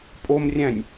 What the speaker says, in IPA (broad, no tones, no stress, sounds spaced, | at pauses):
pʼ o m rʲ æ̃ nʲ